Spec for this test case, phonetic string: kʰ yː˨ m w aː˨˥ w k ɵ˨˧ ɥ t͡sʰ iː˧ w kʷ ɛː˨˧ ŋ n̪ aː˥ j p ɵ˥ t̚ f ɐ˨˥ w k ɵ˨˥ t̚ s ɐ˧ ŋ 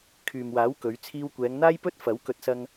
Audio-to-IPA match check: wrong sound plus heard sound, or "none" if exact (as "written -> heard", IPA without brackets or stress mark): none